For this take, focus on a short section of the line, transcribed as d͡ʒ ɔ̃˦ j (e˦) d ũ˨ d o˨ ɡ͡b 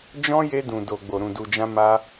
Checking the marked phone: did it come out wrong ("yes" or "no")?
yes